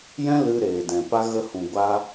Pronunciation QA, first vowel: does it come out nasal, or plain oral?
nasal